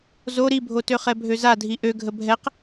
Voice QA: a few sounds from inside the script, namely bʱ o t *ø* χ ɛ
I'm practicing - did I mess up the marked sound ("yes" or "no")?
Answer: no